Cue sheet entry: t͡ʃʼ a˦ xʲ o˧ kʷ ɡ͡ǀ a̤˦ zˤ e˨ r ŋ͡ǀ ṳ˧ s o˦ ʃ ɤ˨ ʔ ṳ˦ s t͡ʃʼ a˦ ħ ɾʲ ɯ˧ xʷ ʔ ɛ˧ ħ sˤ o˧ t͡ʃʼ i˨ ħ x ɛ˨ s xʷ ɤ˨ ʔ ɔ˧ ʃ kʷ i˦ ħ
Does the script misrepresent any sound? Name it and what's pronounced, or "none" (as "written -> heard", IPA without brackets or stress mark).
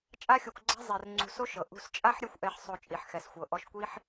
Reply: none